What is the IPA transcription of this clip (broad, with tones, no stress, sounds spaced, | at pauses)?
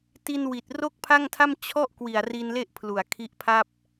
t i˧ n w i˨˩ t̚ r o˥˩ k̚ pʰ a˥˩ ŋ tʰ a˥˩ m t͡ɕʰ ɔ˥˩ ʔ k w i˨˩ a̯ r i˧ n l e˦˥ ʔ pʰ l u˨˩ a̯ kʰ i˦˥ ʔ pʰ a˥˩ p̚